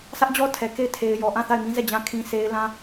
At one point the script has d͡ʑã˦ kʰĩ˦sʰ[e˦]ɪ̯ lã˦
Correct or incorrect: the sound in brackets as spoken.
correct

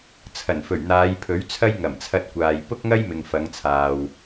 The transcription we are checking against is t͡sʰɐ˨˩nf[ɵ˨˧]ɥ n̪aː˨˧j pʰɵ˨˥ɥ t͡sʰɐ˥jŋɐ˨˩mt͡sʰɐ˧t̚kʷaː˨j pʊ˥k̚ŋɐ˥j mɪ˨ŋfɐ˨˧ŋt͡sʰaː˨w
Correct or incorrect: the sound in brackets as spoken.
incorrect: ɵ˨˩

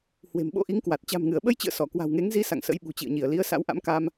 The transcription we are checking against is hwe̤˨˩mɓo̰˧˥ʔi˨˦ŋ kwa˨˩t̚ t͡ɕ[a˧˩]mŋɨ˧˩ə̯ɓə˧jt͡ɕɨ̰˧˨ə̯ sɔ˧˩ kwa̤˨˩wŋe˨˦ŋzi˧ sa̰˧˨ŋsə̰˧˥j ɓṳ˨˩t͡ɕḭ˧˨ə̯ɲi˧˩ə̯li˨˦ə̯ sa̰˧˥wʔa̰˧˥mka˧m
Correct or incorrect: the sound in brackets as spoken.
incorrect: a̤˨˩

